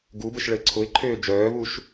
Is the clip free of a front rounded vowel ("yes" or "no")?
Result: no